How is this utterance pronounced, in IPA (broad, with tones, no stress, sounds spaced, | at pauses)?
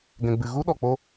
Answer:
ɡ ɛ̃˧ ɡ͡b ɨ˧ ɣ u˦ ɗ ɔ˨ k͡p o˧